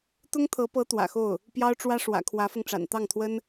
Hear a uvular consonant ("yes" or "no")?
no